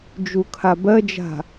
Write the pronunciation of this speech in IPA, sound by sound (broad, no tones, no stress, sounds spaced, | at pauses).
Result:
d͡ʒ u kʰ a b ɜ d͡ʒ a̤